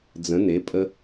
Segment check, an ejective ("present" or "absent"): present